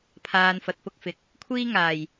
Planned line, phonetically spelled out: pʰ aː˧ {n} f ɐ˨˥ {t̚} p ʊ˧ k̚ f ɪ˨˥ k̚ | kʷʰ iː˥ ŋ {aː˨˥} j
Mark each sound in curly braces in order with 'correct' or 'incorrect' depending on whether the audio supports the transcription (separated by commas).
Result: correct, correct, incorrect